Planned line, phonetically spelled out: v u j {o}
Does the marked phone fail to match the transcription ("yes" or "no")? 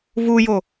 no